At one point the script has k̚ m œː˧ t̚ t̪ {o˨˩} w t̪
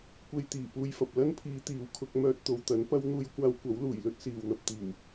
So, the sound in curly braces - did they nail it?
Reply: no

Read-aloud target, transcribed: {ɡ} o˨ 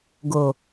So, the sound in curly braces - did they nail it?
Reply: yes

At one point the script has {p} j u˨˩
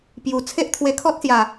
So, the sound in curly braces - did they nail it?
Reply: yes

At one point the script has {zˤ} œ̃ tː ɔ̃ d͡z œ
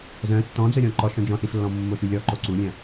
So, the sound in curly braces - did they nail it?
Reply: no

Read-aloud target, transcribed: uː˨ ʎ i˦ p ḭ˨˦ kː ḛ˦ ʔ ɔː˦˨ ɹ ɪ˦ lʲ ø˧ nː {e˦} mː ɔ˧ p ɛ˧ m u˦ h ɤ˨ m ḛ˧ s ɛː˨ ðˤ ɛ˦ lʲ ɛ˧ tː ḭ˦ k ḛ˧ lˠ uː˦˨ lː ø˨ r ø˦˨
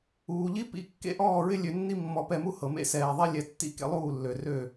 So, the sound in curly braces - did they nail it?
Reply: no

